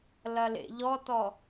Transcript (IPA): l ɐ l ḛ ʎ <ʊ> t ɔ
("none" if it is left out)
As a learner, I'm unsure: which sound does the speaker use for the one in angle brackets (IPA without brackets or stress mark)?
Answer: ɔ